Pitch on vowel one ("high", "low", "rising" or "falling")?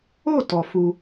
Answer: falling